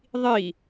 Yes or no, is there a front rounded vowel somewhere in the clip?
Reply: no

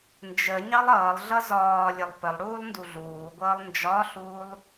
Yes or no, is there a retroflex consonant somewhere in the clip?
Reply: yes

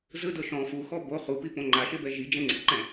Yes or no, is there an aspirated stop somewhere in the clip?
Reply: no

